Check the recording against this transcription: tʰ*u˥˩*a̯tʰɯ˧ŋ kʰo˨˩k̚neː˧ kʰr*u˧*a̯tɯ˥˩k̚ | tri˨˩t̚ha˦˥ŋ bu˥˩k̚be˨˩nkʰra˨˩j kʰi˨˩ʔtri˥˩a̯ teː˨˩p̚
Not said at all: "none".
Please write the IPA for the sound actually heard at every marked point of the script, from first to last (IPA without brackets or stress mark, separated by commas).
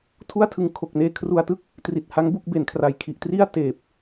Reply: u˥˩, u˧